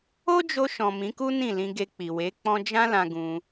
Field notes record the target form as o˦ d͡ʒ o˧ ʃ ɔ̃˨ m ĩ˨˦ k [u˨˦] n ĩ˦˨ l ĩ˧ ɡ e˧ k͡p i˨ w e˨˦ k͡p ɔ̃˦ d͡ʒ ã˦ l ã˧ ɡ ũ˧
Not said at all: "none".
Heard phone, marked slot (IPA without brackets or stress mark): u˦